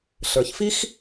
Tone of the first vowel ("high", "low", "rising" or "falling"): low